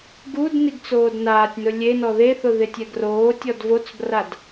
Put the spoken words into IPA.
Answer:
ɡ u d n i ɡ t͡s oː d n aː tʲ n ʊ lʲ e n ɔ ð e θ ʊ ð ɪ tʲ ɛ ɡ r oː tʲ ɔ d v o t͡s b r a d

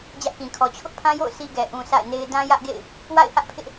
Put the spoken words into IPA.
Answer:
d͡ʑ ä˦ ʔ k ĩ˨ kʰ ɔ˨ t͡ɕʰ ʊ˦ ʔ pʰ ã˦ j o̰˦˨ ʊ̯ s i˦ ɡ ɛ˨ ʔ ũ˨ s a̰˦˨ ɪ̯ n e˦ ɪ̯ d ã˦ j ä˦ ʔ ɡ ḛ˦˨ ɪ̯ | w a̰˦˨ ɪ̯ h ä˦ ʔ pʰ ɪ˦ ʔ

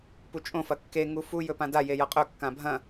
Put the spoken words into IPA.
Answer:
p u t͡ʃʼ õ f ɐ kː e ŋ u f u j ɵ p ã d a j e j ɐ qʼ ɵ kː ã bʱ ɐ̃

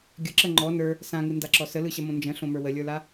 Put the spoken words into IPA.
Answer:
ɡʲ ə ǁ ə ŋ͡ǃ ɔ n ə˞ | s ã ŋ ɯ n d a ǁ ɔ s ə l ɯ ɕ ɐ m õ n d͡ʒ ə̃ ɬ õ m ə˞ w ə lʲ ə˞ l a

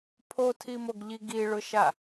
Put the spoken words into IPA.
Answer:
pʰ o tʰ i m o ɡ ʎ i ɡ i ɭ ʊ ʃ a

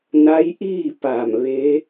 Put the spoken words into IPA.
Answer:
n a˧˥ j ʔ iː˥˨ p a˧˩ m ʋ e˧˥

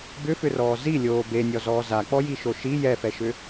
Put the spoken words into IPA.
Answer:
b ʏ f ʏ r ɔː z i lʲ oː b e nʲ ɔ z ɔː z a k͡p ɔ j i ʃ o ʃ i j ɛ f ɛ ʃ ʏ

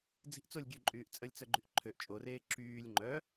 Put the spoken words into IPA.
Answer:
d͡z i̤ ʔ t͡s o lʲ ɡʲ ø ǃʼ yː ʔ t͡sʼ ə lʲ t͡s œ ɡ͡ǃ y ʔ ǃʰ ø ʔ t͡ʃʼ o r eː ǁ yː lʲ ŋ͡ǃ œ

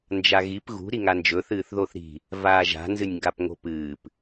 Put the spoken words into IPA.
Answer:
n d͡ʒ a ɣ i p ɣ ṳ ɾ i ŋ a n d͡ʒ ɵ θ ɨː θ ð o θ ɾ i̤ | v aː ʒ a̤ n z ɨ nʲ ŋ ɡ a p ŋ o̤ p ɨː p

